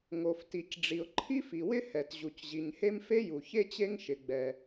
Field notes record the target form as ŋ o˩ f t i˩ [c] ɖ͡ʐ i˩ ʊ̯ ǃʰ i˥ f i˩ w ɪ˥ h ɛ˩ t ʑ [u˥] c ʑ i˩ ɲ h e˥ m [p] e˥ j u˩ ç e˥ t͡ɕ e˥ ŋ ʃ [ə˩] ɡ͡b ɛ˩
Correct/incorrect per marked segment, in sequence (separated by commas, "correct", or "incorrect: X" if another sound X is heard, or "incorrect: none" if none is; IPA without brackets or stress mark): correct, incorrect: u˩, incorrect: f, incorrect: ɪ˩